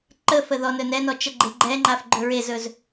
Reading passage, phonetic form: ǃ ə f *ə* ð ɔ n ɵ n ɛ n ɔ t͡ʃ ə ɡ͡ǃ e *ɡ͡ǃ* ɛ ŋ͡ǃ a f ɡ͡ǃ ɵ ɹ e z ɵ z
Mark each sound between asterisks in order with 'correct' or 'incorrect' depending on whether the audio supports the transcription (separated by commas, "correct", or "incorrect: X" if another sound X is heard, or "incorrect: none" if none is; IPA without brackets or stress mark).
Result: correct, correct